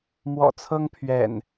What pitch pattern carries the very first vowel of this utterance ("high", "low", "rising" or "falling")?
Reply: low